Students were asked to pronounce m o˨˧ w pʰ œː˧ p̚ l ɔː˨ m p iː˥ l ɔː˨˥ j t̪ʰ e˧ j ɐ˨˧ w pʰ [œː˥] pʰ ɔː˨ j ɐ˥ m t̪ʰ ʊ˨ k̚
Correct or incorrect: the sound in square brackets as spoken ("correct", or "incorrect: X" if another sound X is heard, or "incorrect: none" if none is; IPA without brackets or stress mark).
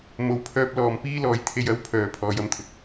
incorrect: œː˨